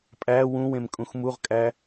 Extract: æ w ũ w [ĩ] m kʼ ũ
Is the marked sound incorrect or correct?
incorrect